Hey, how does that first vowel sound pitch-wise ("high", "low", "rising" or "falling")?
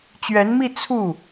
rising